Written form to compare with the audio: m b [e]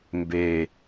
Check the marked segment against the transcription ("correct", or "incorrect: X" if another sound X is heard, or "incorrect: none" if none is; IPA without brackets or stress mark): correct